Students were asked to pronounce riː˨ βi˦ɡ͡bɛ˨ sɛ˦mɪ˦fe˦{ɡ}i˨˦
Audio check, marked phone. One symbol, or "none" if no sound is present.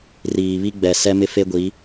ɡʷ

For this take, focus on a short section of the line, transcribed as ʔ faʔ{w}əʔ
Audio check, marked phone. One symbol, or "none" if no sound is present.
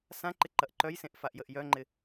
j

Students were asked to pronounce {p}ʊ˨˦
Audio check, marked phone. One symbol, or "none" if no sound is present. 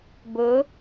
b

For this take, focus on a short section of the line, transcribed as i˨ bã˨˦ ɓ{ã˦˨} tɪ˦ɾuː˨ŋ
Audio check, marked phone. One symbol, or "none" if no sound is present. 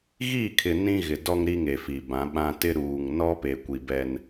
ã˦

